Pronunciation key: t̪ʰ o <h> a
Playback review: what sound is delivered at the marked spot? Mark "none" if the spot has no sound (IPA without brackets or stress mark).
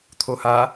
h